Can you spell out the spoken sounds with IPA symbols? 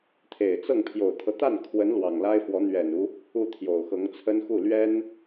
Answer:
t̪ʰ e˨˩ ɪ̯ t͡s ɤ˥˩ ŋ pʰ j o˨˩ ʊ̯ t̪ʰ ɤ˦ t̪ a˥˩ n kʰ w ə˧˥ n l w ɑ˨˩ ŋ l a˥ ɪ̯ f w ɔ˧˥ n̪ ɥ ɛ˨˩ n u˦ | u˥˩ t̪ʰ j o˨˩ ʊ̯ x ɤ˧˥ ŋ t͡sʰ ə˥ n x u˥˩ l ɥ ɛ˥ n

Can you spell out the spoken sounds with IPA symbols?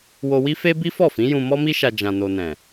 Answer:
w o˧ w i˦ f e˦ b i˦ f ɔ˦˨ f ĩ˨˦ j ũ˧ m ɔ˦ m i˦ ʃ a˧ d͡ʒ ã˧ n o˧ n ɛ̃˨

